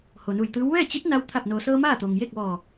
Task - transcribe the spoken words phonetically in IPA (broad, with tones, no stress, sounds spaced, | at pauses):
h o˩ n u˧˩ j t̪ ɯː˧˥ w ʋ ɛː˥˨ t͡ɕ i˧˥ t̚ n a˧ w t̪ʰ a˧˩ p̚ n oː˩ s ɤː˧ m aː˥˨ t̪ o˩ ŋ j eː˥˨ k̚ ʋ ɔː˧˩